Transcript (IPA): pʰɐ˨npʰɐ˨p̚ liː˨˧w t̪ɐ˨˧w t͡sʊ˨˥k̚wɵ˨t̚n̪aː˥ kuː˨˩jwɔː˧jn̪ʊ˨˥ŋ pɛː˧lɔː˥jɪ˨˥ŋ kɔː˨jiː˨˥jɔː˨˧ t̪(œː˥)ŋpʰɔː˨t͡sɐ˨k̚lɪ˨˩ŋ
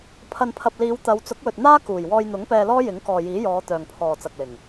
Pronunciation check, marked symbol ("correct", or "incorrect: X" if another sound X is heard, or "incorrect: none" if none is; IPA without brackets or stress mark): incorrect: œː˨